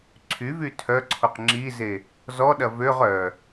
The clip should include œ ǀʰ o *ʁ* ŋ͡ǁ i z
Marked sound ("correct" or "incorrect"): incorrect